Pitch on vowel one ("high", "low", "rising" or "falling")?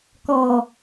low